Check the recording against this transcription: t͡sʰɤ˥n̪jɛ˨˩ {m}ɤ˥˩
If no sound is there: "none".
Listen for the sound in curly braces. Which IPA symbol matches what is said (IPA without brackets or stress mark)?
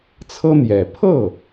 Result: pʰ